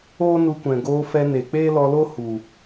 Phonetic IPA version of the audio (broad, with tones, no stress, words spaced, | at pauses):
oː˦nu˧kʷɛ̃˨ ɡoː˧fɛ˧ne˨ k͡peː˦lɔ˧lo˦ hu˨